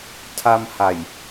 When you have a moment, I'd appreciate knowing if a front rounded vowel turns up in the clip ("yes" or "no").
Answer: no